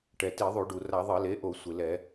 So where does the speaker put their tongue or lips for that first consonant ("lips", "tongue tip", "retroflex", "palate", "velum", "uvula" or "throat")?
retroflex